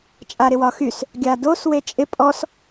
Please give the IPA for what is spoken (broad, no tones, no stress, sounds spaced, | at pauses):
t͡ʃʼ a ɾ ɪ w ɒ x y s | ɡʲ a d o s w e t͡ʃʼ ɪ pʼ ɔ s